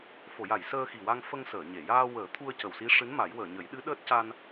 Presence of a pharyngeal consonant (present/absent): absent